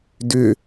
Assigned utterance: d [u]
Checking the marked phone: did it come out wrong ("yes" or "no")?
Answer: yes